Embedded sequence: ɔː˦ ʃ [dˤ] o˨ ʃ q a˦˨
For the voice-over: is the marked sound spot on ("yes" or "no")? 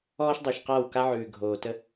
yes